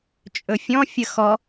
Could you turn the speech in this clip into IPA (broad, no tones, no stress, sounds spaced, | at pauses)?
t͡ʃʼ ɵ fʲ ɔ̃ fʲ ə x ɔ